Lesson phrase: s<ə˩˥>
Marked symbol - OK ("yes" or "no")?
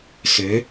no